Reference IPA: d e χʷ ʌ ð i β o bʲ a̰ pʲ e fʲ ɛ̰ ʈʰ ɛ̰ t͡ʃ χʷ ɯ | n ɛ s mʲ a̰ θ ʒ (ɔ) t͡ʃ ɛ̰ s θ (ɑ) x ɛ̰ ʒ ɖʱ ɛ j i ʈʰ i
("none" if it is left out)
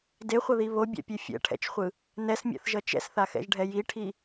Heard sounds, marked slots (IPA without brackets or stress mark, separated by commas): ʌ, a